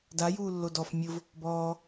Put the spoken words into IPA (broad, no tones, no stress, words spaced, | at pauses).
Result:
dajuːlːo dɔf mʲʊv | bɔː